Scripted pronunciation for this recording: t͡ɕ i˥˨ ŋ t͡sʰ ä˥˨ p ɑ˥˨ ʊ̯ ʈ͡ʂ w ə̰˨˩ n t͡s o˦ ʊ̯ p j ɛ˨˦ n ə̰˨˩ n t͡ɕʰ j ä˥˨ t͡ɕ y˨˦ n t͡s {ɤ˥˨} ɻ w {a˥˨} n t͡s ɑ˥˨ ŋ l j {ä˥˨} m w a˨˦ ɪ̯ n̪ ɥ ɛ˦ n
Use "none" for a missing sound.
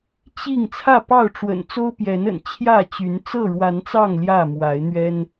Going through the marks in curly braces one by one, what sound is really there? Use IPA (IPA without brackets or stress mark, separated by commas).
ɤ˥˨, a˨˦, ä˥˨